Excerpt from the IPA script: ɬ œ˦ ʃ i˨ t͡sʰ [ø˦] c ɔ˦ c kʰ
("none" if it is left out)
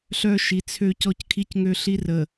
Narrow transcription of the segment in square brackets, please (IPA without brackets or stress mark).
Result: ø˦